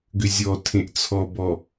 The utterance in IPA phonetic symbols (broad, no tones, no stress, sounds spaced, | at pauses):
ɡ ʏ zʲ ɔ tʰ ẽ ʔ t͡sʰ ɔ b ɔ